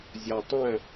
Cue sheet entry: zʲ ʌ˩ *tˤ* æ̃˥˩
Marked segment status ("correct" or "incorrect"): correct